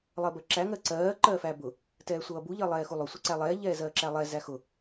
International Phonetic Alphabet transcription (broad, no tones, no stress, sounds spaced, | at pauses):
lˠ ɜ b ɜ ǁ æ ŋ ɜ ǀ ɜː ǃ ɜː f æ b ʊ | t ɛː sʷ ʌː b u ʎ ɜ lˠ ɛː x u lˠ ʊ sʷ ɛ ǀ æ lˠ ɛː ʎ ɛː z ɜː ǁ æ lˠ ɛ z æ x ʊ